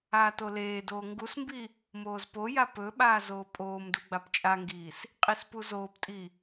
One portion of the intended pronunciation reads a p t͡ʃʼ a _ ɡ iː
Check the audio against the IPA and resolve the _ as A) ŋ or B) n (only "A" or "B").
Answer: A